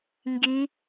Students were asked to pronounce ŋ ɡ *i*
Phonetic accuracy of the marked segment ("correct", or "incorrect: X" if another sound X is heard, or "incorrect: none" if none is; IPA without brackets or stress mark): correct